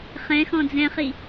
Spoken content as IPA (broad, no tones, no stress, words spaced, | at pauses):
χɛ̃ xɔ̃d͡zɛ̃χi